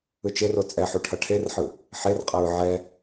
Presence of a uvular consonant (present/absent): present